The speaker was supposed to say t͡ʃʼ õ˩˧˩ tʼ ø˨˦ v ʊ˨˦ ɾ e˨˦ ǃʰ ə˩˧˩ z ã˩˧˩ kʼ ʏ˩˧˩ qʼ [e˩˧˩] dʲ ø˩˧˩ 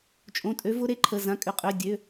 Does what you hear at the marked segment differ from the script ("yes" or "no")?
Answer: yes